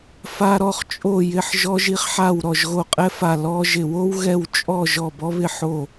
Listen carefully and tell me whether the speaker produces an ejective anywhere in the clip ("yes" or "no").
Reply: yes